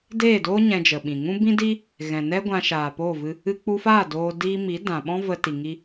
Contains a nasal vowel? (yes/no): yes